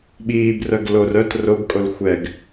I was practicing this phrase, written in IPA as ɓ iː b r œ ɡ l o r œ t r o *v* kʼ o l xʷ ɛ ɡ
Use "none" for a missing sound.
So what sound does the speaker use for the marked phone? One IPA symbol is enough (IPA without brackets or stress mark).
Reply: b